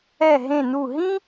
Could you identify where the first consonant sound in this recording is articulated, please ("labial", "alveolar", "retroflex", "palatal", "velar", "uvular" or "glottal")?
glottal